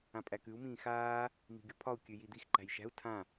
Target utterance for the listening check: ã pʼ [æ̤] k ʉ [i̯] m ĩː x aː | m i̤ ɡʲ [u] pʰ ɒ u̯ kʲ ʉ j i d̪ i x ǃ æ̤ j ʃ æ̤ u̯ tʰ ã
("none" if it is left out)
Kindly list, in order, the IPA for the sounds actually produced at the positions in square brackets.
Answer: æ, u̯, u

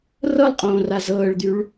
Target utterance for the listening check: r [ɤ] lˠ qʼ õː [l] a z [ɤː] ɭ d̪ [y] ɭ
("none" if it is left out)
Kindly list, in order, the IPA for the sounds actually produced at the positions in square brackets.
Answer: ɤ, r, ɤː, y

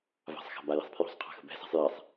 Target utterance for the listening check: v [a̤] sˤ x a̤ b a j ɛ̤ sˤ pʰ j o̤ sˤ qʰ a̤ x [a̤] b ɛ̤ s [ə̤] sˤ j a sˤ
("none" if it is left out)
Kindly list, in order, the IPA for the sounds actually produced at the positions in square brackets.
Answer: a̤, ə̤, a̤

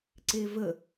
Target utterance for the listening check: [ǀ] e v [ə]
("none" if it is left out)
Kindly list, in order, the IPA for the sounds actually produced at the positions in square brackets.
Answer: ǀ, ə

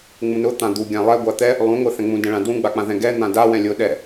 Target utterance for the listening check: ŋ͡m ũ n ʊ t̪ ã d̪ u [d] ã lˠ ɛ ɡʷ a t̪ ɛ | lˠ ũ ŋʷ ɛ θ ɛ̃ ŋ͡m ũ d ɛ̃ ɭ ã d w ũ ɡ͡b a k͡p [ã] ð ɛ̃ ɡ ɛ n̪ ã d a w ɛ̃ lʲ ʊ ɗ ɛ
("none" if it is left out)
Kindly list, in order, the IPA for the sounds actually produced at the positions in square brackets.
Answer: ɡʲ, ã

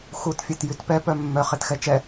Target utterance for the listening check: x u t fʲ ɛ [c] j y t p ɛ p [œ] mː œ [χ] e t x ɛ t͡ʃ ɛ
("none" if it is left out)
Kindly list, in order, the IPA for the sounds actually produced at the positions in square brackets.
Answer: t, œ, χ

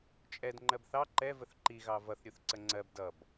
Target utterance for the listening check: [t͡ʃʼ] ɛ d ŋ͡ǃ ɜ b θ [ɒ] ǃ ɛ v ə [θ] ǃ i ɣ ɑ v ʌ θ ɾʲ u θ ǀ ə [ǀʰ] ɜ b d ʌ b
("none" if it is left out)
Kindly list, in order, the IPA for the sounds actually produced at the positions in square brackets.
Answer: t͡ʃʼ, ɑ, θ, ŋ͡ǀ

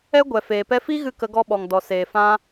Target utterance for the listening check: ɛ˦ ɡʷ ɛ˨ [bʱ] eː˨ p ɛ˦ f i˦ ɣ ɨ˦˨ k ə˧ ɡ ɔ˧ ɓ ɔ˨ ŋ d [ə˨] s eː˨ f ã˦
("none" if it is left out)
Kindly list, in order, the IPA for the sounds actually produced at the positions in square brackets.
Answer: f, ɔ˨

